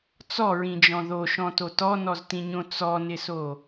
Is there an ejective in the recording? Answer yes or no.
no